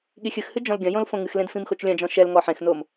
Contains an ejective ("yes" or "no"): no